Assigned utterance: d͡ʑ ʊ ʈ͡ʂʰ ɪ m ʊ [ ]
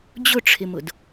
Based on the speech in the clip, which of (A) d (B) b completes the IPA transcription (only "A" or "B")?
A